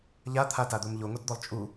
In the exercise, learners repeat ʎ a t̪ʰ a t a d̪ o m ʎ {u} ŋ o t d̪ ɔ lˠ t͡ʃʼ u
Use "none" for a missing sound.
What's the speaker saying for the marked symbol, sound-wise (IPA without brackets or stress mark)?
o